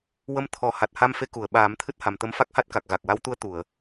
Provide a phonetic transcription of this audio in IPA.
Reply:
w ə˧ m t̪ʰ ɔ˨˩˦ h a˨˩ t̚ h a˧ m f e˧˥ k u˨˩˨ ə̯ ɓ aː˨˩˦ m t̪ʰ ɨ˦˥ t̚ h a˨˩ m t̪ ə˧˥ m f a˦˥ k̚ h a˦˥ t̚ k a˨˩ k̚ ɣ a˨˩ k̚ w a˧˥ w t̪ u˧˥ ə̯ t̪ u˨˩˨ ə̯

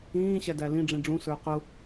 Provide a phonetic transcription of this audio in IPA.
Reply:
ĩː ɕ æ d æ l ĩ ɖ͡ʐ ĩ ɖ͡ʐ ũ s ə˞ q ʊ

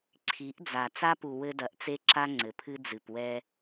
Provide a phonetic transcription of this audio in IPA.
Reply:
ǀʰ i˨˦ ʔ d͡z a˨ t͡s a˦ p u˨ w ɘ˦ d ɐ˨˦ ʔ t͡s e˦ ǁ a˦ ŋ͡ǀ ɘ˨ pʰ ɨ˦ d͡z ɨ˨ p w ɛ˦

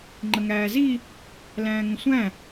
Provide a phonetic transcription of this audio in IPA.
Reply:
ŋ͡ǃ ə ŋ æː z i | l æ̃ː ŋ ə̃ sʷ æ̃

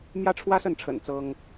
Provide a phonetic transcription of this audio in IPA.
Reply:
m j ä˥ ʈ͡ʂʰ w ä˥ s ə˥˩ n ʈ͡ʂʰ ə̰˨˩ n t͡s ɤ˥ ŋ

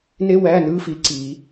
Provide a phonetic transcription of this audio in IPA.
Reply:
n e˥ w æ˧˥˧ n ɯ˧˥˧ f i˨˦ ǀ i˨˩˦

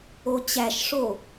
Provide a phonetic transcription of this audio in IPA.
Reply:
o t͡ɕ æ ʃ ʂ o

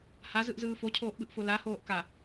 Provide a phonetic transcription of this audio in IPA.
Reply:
h a z ɯ ʔ z ɯː f o cʰ oː ʔ ɓ ɯ ʔ f o l a h oː ʔ k a

